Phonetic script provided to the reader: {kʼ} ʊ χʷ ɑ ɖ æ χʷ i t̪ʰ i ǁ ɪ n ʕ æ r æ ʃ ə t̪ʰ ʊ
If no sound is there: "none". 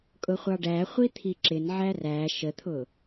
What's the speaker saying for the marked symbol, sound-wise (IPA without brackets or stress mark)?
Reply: kʼ